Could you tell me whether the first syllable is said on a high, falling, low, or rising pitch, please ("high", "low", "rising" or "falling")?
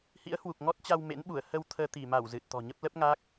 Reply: rising